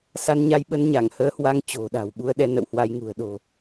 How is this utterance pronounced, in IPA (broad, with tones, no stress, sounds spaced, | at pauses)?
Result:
s a˧ n ɲ a˧ j ɓ ə˧ n ɲ a˧˩ ŋ h əː˨˦ h w a˨˦ ŋ t͡ɕ o̤˨˩ ɗ a̤˨˩ w ɓ u˧ ə̯ ɗ ɛ˧ n ə̰˧˨ w h w a˧ j ŋ ṳ˨˩ ə̯ ɗ o̤˨˩